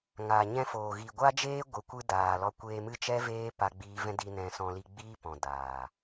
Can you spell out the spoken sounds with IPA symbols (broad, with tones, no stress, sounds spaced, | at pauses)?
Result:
ŋ aː˨ ɲ ɛ̃˧ f oː˨ ɣ i˨ ɡʷ a˦ d͡ʒ eː˦ ɡʷ ɨ˧ kʷ ɨ˦ d aː˨ l ɔ˧ kʷ eː˧ m ɨ˦ t͡ʃ ɛ˦ v eː˦ p a˧ ɡ͡b iː˧ v ɛ̃˦ d i˧ n ɛ̃˧ s ɔ̃˧ l i˧ ɡ͡b iː˦ p ɔ̃˨ d aː˨